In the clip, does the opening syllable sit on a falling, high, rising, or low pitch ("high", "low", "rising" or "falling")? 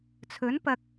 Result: rising